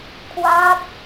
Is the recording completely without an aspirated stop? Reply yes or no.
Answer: no